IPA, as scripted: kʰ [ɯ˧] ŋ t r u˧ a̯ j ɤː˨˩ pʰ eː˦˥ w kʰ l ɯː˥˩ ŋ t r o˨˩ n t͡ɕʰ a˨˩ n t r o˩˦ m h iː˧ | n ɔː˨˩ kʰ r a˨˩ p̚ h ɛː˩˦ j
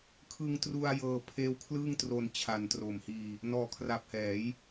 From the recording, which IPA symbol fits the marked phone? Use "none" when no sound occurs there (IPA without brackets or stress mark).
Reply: ɯ˧